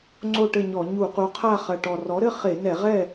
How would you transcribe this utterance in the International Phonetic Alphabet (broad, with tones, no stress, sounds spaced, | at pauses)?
ŋ͡ǀ o˥˨ ʈ ɘ˥˨ ɲ ɔ˧˩˧ ɲ u˧˩˧ q u˩˥ qʰ a˥˨ χ ɐ˨˩ ʈ ɔ˨˩ r ɔ˩˥ ɾ ɘ˥˨ χ e˧˩˧ n ɛ˧˩˧ ʁ ɛ˥˨